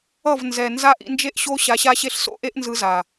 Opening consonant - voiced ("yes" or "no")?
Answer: yes